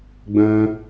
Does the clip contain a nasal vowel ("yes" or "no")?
yes